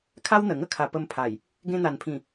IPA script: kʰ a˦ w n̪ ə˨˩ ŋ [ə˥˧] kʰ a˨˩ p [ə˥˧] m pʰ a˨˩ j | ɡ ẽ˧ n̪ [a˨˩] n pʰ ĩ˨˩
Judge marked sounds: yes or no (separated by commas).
yes, no, yes